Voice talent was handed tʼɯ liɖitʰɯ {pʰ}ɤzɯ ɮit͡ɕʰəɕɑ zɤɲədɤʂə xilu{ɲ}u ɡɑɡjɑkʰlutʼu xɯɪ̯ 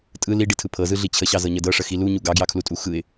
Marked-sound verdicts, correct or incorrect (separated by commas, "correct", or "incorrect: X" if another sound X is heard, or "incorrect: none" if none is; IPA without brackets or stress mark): correct, correct